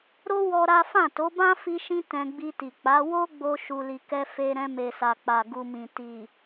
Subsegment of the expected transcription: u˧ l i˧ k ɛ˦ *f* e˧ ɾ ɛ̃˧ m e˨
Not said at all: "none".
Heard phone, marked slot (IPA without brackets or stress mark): f